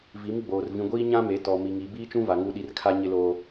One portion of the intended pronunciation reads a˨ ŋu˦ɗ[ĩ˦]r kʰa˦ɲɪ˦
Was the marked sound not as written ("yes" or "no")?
yes